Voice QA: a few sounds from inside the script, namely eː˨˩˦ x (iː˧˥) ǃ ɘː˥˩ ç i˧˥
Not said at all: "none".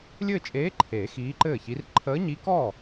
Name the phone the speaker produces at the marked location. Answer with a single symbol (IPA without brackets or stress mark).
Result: iː˧˥